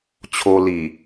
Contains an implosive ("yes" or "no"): no